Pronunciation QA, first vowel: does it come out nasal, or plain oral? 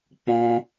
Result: nasal